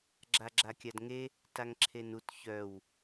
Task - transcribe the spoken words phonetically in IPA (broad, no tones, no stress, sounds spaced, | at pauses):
ɡ͡ǁ a ɡ͡ǁ a kʲ a d ŋ e | t a ŋ ǁʰ e n u t ç œ w